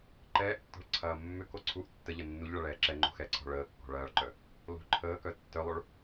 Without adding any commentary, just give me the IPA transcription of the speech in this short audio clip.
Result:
ǃ ɛː ʔ tː ɔ̤ ɭ ǀʰ ɐː mː ʏ k o ǀʰ u ʔ tː ə ʎ ɐ nː u ʎ ɭ ɐ ɭ ɛː ǁ ɛ ŋ͡ǃ o̤ x ɛ ǀʰ ɔ̤ ɭ əː kː ɔ̤ ɭ ɐː ɭ ǃ œ | l o̤ ǃʰ əː k œ tː œ lˠ o ɭ

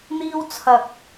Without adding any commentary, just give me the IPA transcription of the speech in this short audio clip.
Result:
n̪ iː˥ w t͡sʰ ɐ˧ k̚

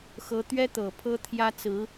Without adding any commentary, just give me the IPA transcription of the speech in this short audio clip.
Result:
x ɤ˥ t̪ ɥ ɛ˥ t̪ ɤ˨˩ pʰ ɤ˥ t̪ʰ j ä˥ t͡s ɹ̩˧˥

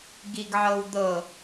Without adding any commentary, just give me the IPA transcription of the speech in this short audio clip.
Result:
ɡ i ɡ ʕ ɤ w d̪ ɤ

